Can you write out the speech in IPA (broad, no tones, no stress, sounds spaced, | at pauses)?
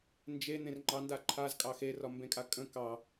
n d͡ʒ e n̪ ẽ r ŋ͡ǃ ɑ n d a ǃʰ a z kʼ ɑ x e r ɒ m b ẽ kʼ a kʼ ə̃ k ɑ